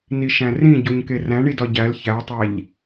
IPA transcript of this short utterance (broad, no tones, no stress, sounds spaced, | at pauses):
n i ʃ æ̃ r ĩ ɟ o ɲ k e r æ̃ ɳ i d ɒ ɟ æ l ç æ tˤ æ ʎ